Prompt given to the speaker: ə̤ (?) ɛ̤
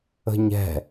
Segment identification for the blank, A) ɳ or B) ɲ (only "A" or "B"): B